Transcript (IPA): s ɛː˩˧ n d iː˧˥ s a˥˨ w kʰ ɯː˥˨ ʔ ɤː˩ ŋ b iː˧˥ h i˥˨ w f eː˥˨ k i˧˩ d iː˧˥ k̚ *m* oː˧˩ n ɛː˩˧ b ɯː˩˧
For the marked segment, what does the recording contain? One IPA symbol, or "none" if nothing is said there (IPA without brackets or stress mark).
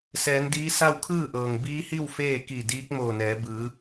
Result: m